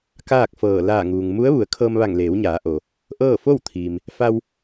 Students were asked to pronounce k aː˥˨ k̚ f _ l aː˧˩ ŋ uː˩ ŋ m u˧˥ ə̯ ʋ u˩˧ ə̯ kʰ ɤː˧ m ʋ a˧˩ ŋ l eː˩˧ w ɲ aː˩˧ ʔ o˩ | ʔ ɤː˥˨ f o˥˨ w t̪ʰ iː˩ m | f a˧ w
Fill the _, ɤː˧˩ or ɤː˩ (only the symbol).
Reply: ɤː˧˩